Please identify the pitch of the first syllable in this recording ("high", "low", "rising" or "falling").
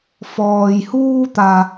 low